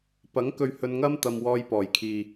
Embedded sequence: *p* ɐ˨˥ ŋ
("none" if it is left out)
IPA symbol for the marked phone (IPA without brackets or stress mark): p